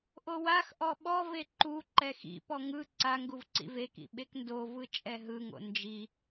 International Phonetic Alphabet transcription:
ʔ o w a x ʔ ɔ ɓ ɔ v e ǃ u ǃ ɛ x ḭ p ɔ ŋ ɯ ǀ a ŋ ɡ u v ǀ ḭ v e k ḭ ɓ e k n d o v ɯ t͡ʃʼ ɛ ɦ ɯ ŋ o̰ n d͡ʒ i

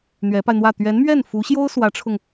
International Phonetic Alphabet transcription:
n̪ ɥ ɛ˧˥ p a˧ ɪ̯ n̪ w ä˥˩ t̪ ɥ ɛ˧˥ n m ɥ ɛ˥˩ n f u˧˥ ɕ j o˥ ʊ̯ s w ä˧˥ ʈ͡ʂʰ ʊ˧ ŋ

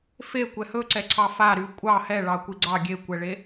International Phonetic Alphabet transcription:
f e kʷ ɛ h ɵ ǀ ɛ ǀʰ ɑ f a ɾ y kʷʼ ɑ h ɛ ɭ ɑ kʷ i ɡ͡ǀ ɑ ɡʲ e kʷ ɛ ɭ e

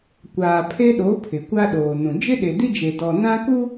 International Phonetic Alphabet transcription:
kʷ aː˨ pʰ e˦ ɗ o˨˦ pʰ ɪ˨ kʷ a˦ ɗ oː˨ n ũ˨ d͡ʒ ɪ˦ ɗ e˨ d i˦ d͡ʒ e˨ d ɔ˨ n ã˦ k u˦

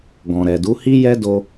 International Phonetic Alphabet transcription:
ɡ ɔ̃˨ ɾ ɛ˨ d u˨˦ h i˦ j ɛ˦ d o˧

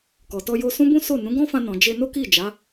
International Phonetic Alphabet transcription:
k ɔ˨ t ɔ˧ j o˧ s ũ˦ b ũ˦ s o˦˨ n ũ˨˦ ɡ ɔ̃˦ f ã˧ n ɔ̃˨ d͡ʒ e˧ n o˦ k i˦˨ d͡ʒ a˨˦

